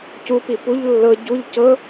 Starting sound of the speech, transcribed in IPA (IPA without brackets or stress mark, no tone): c